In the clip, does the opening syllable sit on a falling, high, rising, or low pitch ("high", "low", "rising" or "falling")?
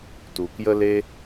low